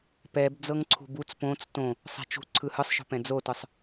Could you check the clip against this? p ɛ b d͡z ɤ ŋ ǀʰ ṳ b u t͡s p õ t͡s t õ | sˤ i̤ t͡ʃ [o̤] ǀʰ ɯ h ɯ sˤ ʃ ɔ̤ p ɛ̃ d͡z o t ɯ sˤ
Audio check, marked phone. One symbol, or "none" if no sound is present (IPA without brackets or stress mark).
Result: ṳ